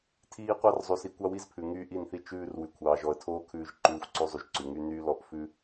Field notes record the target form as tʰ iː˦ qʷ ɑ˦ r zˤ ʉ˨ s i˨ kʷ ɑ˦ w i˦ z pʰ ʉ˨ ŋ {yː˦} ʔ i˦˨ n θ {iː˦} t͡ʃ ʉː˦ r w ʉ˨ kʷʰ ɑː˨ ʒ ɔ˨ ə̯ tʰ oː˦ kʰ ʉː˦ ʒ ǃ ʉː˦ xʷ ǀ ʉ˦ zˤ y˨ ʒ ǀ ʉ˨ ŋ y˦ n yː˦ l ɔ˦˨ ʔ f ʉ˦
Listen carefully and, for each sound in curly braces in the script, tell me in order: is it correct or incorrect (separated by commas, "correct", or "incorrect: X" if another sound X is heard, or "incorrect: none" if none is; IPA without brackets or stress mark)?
correct, incorrect: i˦